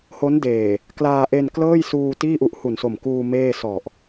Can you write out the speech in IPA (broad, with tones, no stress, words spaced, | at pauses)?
ho˦˥ndeː˨˩ | klaː˧ʔe˧n klɤː˥˩jsuː˧ tiː˥˩ʔu˦˥ʔ hu˨˩nso˨˩mkuː˧ meː˥˩ sɔ˨˩ʔ